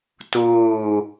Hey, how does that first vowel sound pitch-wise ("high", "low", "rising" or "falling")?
falling